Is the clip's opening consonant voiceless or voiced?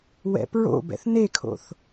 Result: voiced